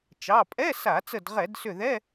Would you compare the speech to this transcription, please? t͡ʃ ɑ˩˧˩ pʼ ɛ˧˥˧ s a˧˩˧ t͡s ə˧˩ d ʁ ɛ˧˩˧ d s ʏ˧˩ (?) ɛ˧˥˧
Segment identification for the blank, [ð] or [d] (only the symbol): ð